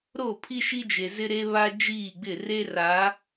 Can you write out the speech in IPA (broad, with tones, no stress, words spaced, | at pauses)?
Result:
ɾo˦˨pʰi˦ʃi˦d͡ʒe˨ zɪ˦ɾe˦ βa˦ d͡ʒiː˦˨ɡ͡bɪ˦˨ re˦ra˨˦